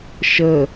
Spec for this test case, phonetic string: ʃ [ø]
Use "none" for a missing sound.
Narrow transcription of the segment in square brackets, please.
ə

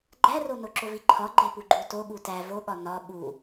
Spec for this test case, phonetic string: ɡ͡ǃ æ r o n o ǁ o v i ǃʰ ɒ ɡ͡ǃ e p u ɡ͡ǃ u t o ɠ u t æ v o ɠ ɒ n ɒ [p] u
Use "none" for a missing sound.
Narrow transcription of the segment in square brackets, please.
ɓ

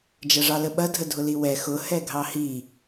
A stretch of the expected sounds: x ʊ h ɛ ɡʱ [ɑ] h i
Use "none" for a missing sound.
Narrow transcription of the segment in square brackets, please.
ɑ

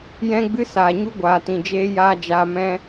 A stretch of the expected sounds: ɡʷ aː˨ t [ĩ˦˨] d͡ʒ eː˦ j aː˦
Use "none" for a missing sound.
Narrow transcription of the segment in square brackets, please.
ĩ˨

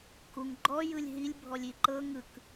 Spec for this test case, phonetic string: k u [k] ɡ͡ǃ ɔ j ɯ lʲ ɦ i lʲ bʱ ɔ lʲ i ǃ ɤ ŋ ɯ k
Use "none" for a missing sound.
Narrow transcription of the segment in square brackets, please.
ŋ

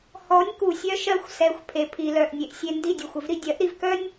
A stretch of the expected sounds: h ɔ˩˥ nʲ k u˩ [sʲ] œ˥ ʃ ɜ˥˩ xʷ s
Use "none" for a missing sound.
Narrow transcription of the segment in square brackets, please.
sʲ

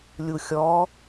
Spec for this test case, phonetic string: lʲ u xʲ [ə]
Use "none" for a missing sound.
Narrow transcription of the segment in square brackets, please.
ɔ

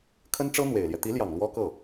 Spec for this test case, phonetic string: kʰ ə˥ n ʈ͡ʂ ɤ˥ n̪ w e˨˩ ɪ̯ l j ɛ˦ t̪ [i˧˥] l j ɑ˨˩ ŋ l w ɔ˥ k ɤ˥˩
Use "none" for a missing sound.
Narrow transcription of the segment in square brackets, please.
i˧˥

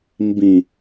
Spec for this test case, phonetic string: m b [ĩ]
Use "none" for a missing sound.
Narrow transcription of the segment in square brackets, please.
ĩ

